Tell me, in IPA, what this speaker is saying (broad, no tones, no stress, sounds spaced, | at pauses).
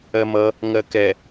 ɜ m ʌ | ŋ ɜ k ɛ